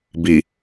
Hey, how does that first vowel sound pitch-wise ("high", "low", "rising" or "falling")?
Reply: low